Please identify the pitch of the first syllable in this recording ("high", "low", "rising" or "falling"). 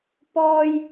high